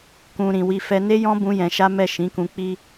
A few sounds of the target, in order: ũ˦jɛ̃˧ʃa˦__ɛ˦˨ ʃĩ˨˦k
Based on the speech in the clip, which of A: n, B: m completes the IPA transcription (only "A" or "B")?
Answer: B